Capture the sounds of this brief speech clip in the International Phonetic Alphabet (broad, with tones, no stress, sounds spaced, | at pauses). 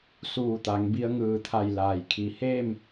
s uː˧˩ t̪ a˩˧ ŋ b i˧ ə̯ ŋ ɯː˧˩ t̪ʰ a˧˩ j l aː˧˩ j kʰ i˧˩ h eː˥˨ m